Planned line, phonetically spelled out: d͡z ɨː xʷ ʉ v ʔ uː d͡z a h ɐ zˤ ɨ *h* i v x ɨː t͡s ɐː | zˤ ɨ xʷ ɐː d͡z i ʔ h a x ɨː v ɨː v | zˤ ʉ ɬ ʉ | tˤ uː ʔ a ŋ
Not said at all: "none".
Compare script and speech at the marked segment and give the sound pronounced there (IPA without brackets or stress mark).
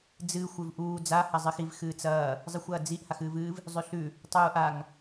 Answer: x